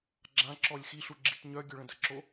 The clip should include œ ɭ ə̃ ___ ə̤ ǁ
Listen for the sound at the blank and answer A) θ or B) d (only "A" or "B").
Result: B